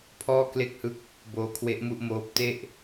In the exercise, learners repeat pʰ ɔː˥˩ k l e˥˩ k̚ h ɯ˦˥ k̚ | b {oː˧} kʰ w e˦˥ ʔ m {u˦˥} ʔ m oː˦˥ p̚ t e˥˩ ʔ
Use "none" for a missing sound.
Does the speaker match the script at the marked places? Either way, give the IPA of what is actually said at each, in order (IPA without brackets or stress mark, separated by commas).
oː˦˥, u˥˩